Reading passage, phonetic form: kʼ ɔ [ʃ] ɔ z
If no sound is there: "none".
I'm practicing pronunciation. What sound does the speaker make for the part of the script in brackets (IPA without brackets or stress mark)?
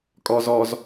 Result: z